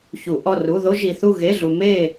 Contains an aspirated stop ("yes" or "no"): no